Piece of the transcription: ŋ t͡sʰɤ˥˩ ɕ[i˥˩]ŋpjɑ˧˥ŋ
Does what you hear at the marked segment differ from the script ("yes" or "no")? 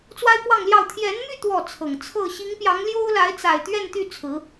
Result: yes